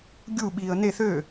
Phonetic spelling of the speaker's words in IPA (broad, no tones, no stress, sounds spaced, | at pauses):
ɡʲ u ɓ iː ə̯ n e θ øː